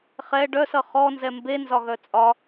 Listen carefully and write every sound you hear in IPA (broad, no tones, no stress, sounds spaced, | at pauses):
χ ɛ ɖ œ s ʌ χ ɔ n z ɛ m b e n z ɒ ɣ œ t͡sʼ ɒ